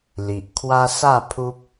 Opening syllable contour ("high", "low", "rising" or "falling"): low